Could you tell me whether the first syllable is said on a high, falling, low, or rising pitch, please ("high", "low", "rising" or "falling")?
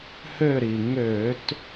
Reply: falling